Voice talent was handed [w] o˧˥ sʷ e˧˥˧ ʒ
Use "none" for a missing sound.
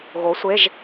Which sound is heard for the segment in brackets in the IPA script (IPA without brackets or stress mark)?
ɣ